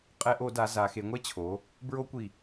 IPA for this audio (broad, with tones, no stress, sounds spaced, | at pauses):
qʼ ɛ˧˩˧ ʔ o˧˩˧ d a˩˧ z a˩˧ x e˩˧ ŋʷ ɛ˦˥ t͡ɕʰ o˩˧ | b ɹ o˦˥ kʷ i˧˩